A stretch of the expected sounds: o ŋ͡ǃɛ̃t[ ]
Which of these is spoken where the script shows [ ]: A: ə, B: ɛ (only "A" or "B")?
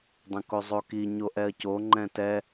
B